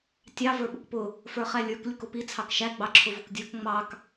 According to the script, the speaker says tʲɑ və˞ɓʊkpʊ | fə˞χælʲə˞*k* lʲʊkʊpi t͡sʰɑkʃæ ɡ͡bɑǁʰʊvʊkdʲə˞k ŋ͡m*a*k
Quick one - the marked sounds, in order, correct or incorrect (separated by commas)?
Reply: correct, incorrect